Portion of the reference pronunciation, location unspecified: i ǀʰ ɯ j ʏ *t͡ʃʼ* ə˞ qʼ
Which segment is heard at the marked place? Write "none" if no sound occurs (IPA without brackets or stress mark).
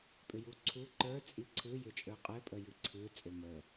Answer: t͡ʃʼ